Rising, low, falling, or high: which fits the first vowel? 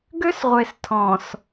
high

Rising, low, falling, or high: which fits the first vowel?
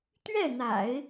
falling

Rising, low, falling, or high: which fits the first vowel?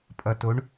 low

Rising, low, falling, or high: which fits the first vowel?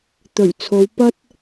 low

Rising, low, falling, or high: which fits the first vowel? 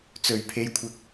low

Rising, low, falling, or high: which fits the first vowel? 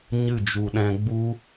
falling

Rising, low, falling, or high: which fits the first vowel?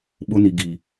high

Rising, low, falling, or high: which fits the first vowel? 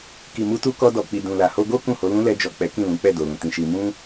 low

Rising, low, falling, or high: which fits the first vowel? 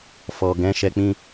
low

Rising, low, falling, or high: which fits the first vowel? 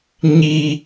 low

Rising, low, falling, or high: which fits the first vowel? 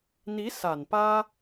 rising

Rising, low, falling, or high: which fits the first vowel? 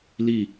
falling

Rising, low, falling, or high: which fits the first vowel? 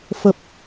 low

